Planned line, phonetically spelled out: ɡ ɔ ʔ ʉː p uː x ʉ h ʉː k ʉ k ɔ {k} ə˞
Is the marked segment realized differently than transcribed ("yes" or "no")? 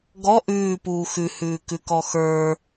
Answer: yes